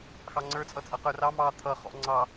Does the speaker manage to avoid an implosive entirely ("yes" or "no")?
yes